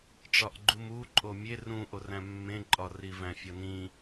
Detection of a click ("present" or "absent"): present